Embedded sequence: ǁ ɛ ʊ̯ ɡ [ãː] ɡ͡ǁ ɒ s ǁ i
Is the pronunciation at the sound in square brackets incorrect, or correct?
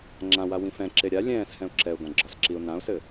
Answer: incorrect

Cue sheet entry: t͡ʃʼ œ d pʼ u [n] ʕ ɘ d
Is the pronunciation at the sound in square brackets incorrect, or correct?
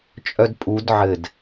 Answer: incorrect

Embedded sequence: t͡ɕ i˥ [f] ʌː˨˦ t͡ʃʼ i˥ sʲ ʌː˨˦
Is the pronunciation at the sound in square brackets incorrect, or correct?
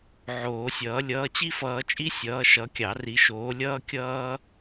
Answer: correct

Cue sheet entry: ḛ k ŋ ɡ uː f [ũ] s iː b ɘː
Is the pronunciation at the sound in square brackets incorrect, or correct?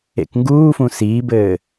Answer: correct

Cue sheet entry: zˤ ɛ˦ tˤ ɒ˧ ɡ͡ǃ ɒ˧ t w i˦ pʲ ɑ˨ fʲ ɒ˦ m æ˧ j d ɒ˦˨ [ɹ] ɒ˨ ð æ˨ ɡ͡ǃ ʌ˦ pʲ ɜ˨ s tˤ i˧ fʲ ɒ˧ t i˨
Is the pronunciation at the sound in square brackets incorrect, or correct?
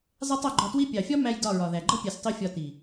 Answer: correct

